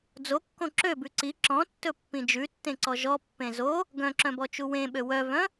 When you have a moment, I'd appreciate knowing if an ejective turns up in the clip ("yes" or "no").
no